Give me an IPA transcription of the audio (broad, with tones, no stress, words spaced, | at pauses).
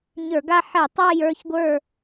ɲə˞˧˩˧ɡa˦˨ ħɛ˧˩˧tˤa˦˨jə˞˦˨çɡʷə˞˦˨